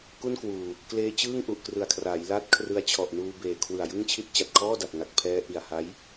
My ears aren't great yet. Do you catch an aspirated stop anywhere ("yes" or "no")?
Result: yes